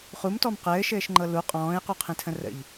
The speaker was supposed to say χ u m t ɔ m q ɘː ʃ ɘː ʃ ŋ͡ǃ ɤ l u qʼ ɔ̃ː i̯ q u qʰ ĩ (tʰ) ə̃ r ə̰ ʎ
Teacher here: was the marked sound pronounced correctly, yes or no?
yes